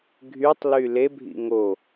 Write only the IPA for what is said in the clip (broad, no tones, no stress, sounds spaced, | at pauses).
ɡʱ y tˤ l y l e bʱ ḭ ŋ o